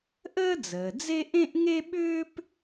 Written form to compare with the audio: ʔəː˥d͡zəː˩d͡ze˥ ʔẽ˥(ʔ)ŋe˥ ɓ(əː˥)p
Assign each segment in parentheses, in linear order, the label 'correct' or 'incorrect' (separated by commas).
correct, incorrect